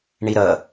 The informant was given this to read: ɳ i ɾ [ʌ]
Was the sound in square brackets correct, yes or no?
yes